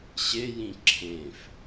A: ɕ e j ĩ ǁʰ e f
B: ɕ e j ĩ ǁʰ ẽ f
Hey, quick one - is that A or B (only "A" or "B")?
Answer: B